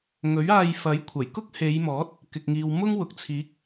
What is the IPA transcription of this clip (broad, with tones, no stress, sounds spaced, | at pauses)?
ŋ ɵ˨˥ ɥ aː˧ j f ɐ˨˥ j kʷʰ ɐ˨˩ j k ʊ˥ k̚ h e˨˧ j m ɔː˨˥ t̚ | k ɪ˨ k̚ ŋ iː˨ w m ʊ˥ ŋ w ʊ˨ k̚ t͡sʰ iː˨˥ k̚